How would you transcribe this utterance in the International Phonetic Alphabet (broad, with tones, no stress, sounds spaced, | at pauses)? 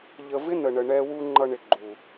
ʎ ə˧ v ɪ˦ n ə˨ ɳ ə˨ ɳ ɛ˧ w u˧ ŋ͡ǃ ʌ˧ ɳ ɪ˨ ɡ͡ǃ u˨